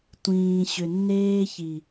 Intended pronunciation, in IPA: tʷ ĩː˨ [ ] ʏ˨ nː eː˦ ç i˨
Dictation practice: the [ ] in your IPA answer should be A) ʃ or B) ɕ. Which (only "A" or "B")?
B